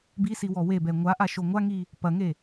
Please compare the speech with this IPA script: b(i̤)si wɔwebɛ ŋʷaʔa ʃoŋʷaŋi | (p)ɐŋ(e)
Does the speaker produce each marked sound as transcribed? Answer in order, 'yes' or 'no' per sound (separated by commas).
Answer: no, yes, yes